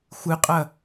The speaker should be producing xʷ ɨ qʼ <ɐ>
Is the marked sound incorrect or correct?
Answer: correct